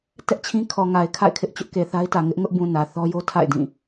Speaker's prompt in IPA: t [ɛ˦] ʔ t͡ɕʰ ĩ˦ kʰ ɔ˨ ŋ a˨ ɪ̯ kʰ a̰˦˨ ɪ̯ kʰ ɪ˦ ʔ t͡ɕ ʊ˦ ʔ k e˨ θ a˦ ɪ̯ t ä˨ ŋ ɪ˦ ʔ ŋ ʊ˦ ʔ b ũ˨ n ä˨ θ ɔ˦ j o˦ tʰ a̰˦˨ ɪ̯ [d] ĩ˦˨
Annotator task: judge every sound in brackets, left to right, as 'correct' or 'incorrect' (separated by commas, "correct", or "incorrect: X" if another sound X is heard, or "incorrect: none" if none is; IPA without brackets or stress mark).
correct, correct